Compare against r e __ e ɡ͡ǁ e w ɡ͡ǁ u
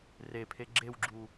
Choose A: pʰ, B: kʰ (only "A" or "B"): A